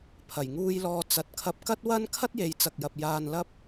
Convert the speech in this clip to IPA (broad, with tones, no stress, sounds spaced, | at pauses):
pʰ ɐ˨˩ j ŋ uː˧ j l ɔː˧ t͡s ɐ˨ t̚ kʰ ɐ˧ p̚ k ɐ˥ t̚ w ɐ˥ n kʰ ɐ˥ t̚ j e˨˧ j t͡s ɐ˨ k̚ j ɐ˨ p̚ j aː˧ n l ɐ˥ p̚